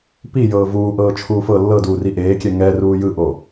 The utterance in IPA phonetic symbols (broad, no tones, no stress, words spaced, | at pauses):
pijɤː vuːʔɤː t͡ʃʰuːfɤ lːɤduːri ʔeːkʲɛ ŋɛruː jɯʔo